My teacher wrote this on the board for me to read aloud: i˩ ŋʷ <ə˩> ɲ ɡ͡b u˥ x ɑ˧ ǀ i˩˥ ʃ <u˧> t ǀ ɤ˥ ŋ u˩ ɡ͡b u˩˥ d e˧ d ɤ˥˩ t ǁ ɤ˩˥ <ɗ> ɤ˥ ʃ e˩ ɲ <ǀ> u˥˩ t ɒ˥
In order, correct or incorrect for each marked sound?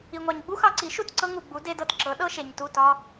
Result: incorrect: ɑ˩, incorrect: u˥˩, correct, incorrect: t

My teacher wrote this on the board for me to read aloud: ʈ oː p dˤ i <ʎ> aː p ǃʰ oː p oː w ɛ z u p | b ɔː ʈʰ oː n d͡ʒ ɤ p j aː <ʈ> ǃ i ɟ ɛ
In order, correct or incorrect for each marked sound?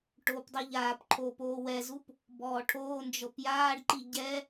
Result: correct, incorrect: ɖ

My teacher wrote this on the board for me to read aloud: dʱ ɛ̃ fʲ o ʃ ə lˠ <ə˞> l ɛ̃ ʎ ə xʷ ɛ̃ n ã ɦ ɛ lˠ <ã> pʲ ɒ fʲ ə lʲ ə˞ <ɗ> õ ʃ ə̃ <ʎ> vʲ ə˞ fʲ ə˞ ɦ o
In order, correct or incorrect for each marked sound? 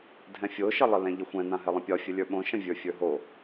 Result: incorrect: ə, incorrect: ə̃, incorrect: ɓ, incorrect: none

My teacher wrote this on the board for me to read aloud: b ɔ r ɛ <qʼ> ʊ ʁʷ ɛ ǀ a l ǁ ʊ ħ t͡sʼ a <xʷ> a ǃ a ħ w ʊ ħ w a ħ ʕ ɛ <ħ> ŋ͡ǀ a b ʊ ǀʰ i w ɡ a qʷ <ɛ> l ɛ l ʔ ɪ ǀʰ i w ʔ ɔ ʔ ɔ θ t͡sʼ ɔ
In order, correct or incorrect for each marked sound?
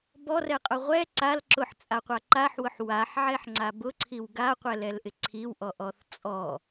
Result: correct, incorrect: qʷ, correct, correct

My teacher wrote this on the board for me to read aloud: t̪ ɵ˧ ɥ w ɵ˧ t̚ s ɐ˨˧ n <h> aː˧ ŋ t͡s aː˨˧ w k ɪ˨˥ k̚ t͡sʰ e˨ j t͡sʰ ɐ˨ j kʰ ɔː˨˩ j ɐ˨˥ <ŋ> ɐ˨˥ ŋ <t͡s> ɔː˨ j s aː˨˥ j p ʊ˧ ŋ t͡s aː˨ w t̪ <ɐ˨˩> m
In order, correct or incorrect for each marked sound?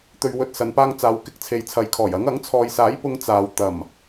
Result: incorrect: p, correct, incorrect: t͡sʰ, correct

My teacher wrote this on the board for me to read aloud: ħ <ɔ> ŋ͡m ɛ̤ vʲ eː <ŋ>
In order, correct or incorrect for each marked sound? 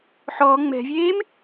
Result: correct, incorrect: m

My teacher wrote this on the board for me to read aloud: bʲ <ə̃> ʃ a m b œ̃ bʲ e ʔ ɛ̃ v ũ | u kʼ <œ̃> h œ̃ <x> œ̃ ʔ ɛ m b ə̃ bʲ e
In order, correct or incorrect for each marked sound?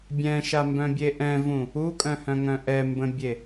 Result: incorrect: ɛ̃, correct, incorrect: ŋ

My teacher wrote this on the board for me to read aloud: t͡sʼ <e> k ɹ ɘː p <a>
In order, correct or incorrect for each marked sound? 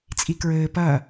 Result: incorrect: i, incorrect: ɐ

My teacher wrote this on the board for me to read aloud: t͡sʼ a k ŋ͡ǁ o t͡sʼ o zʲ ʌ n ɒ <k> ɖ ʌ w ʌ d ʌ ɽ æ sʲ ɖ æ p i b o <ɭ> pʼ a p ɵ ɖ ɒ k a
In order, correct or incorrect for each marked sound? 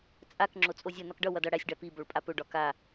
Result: correct, correct

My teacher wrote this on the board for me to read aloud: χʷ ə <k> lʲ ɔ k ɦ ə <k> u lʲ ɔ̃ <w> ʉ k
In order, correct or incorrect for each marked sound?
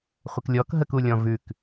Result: correct, correct, incorrect: v

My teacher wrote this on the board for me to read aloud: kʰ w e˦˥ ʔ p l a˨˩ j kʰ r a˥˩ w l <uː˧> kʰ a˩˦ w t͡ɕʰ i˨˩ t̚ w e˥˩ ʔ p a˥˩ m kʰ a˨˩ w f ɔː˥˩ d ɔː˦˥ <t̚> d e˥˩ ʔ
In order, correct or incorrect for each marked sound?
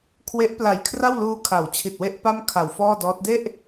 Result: correct, correct

